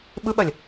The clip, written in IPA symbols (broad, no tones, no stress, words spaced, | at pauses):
ɓɯɓɐlʲ